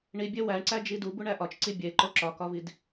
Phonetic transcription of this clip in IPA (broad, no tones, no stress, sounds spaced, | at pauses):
ɳ i bʲ e w æ ɳ ǀ æ d͡ʒ i d u b u ɳ æ ʔ ɒ t͡ʃ ǀ i bʲ e ǃ o ǁ ɒ k ɒ v i d